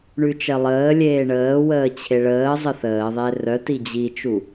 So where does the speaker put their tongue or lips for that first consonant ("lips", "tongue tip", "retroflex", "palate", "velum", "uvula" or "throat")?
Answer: retroflex